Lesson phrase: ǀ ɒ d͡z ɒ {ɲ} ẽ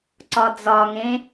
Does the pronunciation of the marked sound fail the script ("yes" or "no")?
yes